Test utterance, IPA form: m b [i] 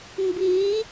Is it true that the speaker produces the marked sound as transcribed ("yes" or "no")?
yes